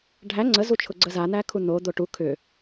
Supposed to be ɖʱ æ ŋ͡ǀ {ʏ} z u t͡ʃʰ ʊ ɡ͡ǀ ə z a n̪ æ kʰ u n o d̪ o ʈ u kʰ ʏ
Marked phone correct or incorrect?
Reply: incorrect